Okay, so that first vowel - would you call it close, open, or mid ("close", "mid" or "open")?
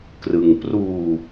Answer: close